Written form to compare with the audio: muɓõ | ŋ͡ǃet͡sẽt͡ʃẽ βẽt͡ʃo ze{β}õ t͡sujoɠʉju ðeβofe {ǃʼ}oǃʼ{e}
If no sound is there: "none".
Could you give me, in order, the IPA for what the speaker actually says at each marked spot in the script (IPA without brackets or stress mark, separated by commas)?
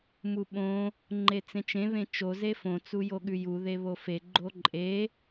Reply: f, ɡ͡ǃ, e